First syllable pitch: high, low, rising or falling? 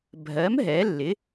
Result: rising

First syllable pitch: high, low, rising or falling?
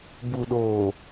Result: low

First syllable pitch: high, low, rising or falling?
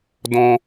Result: high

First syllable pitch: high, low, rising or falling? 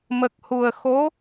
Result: low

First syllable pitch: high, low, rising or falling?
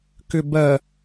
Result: low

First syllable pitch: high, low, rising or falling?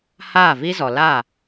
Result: falling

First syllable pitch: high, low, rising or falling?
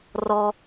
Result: high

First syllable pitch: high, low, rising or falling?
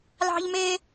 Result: high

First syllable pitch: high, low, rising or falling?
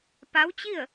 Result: rising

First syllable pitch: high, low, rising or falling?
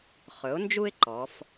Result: rising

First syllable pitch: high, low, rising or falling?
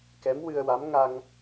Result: rising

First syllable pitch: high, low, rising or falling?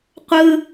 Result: high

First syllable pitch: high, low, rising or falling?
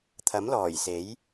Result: rising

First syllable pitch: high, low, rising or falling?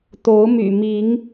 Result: rising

